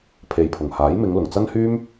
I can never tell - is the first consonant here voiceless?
yes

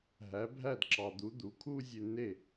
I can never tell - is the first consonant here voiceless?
no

